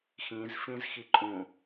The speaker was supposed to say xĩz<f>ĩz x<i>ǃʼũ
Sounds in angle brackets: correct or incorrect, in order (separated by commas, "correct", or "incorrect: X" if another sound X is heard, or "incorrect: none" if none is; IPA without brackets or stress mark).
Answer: correct, correct